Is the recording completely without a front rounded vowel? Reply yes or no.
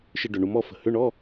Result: no